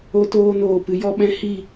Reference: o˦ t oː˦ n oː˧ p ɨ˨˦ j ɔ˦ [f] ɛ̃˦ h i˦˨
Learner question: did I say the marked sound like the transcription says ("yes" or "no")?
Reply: no